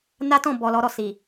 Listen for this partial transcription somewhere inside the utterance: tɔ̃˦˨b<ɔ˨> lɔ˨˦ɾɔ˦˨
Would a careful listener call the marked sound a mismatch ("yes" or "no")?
no